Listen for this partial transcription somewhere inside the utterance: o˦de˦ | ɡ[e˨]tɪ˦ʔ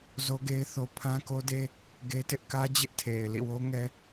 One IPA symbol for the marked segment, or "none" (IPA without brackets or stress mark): e˦